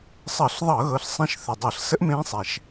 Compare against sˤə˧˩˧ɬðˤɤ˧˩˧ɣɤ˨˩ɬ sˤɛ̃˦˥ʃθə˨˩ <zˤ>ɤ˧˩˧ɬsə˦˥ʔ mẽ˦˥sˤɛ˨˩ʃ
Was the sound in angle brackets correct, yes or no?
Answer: no